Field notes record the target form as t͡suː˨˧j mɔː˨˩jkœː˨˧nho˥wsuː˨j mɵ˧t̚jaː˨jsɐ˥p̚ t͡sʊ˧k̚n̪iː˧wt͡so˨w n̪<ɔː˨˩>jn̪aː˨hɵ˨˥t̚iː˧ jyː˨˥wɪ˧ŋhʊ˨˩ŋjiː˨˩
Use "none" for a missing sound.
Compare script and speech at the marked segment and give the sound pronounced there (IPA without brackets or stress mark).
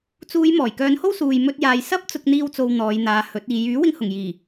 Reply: ɔː˨˧